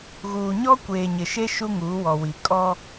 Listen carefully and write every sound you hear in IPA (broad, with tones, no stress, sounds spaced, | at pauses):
ɣ uː˨ ɲ ɔ˦ kʷ eː˨ ɲ ɪ˨ ʃ e˦ ʃ u˦ ŋ uː˨˦ w ɔ˨ w i˨ kʼ ɔ˦